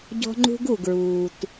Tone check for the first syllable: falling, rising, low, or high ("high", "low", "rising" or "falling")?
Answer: high